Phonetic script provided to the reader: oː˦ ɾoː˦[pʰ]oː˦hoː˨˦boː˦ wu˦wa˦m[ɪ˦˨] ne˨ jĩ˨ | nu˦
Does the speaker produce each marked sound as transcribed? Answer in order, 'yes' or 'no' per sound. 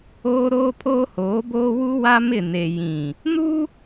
yes, yes

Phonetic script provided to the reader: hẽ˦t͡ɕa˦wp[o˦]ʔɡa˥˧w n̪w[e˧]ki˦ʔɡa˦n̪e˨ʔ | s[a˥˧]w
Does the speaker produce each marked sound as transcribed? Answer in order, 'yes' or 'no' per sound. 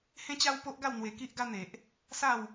yes, yes, yes

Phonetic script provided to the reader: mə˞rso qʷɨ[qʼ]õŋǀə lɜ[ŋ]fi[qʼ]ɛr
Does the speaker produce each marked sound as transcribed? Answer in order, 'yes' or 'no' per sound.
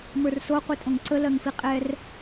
no, yes, yes

